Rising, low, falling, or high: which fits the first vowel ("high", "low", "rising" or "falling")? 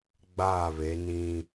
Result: falling